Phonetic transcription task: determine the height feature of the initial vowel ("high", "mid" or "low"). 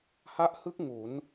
low